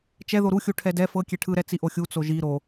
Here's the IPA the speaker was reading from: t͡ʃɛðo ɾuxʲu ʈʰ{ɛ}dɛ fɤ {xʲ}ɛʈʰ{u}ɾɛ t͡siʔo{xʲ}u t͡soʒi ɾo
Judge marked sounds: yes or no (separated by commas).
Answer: yes, no, no, yes